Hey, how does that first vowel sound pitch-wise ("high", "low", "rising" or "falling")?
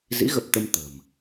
rising